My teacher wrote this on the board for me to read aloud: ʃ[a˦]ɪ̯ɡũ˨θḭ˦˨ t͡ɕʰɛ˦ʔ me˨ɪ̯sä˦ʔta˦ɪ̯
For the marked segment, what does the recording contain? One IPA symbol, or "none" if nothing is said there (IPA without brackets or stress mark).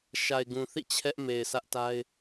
a˨